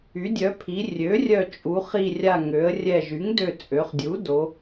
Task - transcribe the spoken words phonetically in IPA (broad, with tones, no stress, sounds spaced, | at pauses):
y˩˥ dʲ œ˩˥ pʰ i˩˧ rʲ ø˩˥ rʲ œ˧˩ t͡ʃʼ u˩˧ χ i˧˩ rʲ a˧˩ ŋ ø˩˧ ə̯ rʲ ɛ˧˩ ʒ y˩˥ ŋ d ø˧˩ t͡sʼ ø˩˧ χ dʲ u˩˥ d o˩˧